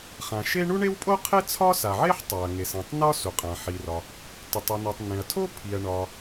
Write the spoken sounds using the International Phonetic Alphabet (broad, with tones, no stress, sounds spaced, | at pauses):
χ ã˩ ʃ e˥ ɳ u˥ ɳ e˥ w pʼ o˥ qʰ e˥ t͡sʰ ɒ˥ s a˩ ʕ e˥ ħ tˤ a˩ ɐ̯ ŋ e˩ s ẽ˩ tˤ n ɒ˥ s u˩ qʼ ã˩ ħ i˩ r ɒ˩ | t o˩ tˤ u˩ n o˩ tˤ n ẽ˩ ɐ̯ tʰ o˥ pʰ i˩ ɐ̯ ɳ ɒ˩